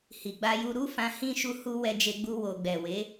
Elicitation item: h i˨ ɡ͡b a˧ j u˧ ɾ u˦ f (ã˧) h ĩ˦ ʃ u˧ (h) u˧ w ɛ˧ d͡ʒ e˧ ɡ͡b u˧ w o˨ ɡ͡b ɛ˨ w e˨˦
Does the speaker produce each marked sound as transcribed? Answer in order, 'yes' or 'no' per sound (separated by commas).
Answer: yes, yes